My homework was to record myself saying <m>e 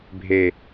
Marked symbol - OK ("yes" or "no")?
no